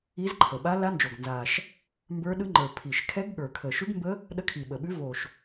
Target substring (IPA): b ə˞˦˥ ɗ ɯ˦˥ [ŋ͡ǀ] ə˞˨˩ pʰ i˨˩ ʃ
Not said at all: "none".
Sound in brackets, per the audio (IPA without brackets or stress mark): ŋ͡ǃ